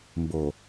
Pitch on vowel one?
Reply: low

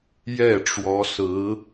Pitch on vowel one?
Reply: falling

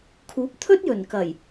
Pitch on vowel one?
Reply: rising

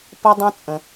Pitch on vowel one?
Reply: high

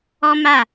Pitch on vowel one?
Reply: high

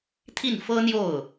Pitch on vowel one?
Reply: falling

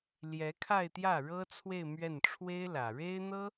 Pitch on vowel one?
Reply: rising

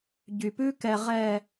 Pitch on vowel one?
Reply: low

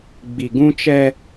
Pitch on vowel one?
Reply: low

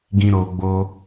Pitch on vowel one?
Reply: low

